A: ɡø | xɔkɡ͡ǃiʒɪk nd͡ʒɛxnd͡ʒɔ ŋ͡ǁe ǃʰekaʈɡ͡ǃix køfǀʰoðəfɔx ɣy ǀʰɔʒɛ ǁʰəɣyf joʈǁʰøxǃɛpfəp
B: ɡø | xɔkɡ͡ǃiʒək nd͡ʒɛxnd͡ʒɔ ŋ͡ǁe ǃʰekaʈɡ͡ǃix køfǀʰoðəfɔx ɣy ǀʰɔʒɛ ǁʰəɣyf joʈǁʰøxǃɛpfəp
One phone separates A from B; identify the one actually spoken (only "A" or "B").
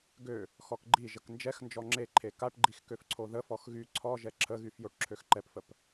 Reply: B